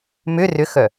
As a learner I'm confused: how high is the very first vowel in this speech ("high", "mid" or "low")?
high